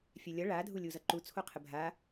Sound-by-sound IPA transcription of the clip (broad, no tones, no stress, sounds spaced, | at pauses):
fʲ ɛ lʲ ʌ ɭ a dʱ u lʲ u z ʌ ǃ u t͡sʰ o qʰ ə bʱ a